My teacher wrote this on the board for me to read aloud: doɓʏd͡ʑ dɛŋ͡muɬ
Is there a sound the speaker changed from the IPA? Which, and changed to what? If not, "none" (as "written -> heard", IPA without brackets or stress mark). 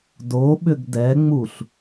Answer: d͡ʑ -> ɡ